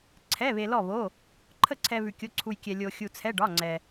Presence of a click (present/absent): present